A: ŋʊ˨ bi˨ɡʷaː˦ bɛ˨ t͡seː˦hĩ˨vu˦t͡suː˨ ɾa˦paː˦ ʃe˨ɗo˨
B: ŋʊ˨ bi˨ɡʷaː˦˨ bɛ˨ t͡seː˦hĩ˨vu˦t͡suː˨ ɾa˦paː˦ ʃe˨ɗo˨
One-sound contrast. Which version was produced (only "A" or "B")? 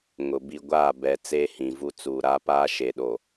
B